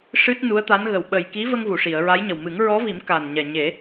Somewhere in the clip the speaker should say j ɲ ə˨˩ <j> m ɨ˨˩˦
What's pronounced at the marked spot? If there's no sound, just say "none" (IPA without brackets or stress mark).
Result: w